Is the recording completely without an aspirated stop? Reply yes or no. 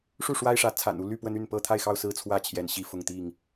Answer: no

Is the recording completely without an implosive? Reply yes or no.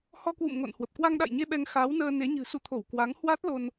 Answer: no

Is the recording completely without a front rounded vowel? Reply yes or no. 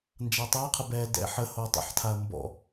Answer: yes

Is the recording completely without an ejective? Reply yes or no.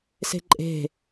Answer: no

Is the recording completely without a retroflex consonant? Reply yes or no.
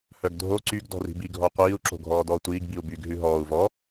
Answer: yes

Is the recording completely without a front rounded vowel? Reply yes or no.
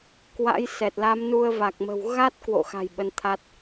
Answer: yes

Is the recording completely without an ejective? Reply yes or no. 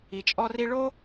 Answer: no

